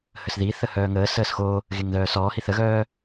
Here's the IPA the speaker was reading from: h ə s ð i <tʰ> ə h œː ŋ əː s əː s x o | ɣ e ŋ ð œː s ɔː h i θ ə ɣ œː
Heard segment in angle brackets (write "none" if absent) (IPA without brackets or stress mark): θ